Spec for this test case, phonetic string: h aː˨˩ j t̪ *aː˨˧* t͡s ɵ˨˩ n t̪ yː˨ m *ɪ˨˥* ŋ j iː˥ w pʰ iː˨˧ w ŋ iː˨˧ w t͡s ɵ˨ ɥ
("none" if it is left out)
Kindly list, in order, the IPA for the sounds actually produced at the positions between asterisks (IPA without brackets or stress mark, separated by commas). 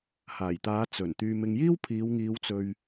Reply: aː˨˧, ɪ˨